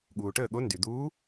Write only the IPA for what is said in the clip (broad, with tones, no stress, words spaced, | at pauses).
ɠuː˩ʈəː˥˩ɠo˧˥ ndy˩d̪uː˧˥